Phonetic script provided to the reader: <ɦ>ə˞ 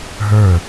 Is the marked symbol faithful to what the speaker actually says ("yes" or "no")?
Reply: yes